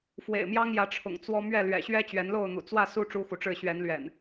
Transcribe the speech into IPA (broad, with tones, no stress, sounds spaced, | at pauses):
f w ḛ˨˩ ɪ̯ m j ɑ˦ ŋ j ä˨˦ ʈ͡ʂʰ ʊ̰˨˩ ŋ t͡s w ɔ˦ m ɥ ɛ˥˨ l ɥ ɛ̰˨˩ ɕ ɥ ɛ˦ t͡ɕ ɥ ɛ˨˦ n l o˥˨ ʊ̯ n̪ ṵ˨˩ t͡s w ä˥˨ s u˦ ʈ͡ʂ u˦ x u˨ ʈ͡ʂ ɻ̩˥˨ ɕ ɥ ɛ˨˦ n l ɥ ɛ̰˨˩ n